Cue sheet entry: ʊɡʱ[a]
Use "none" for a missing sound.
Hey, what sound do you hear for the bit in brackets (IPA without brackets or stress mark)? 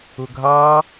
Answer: ɑ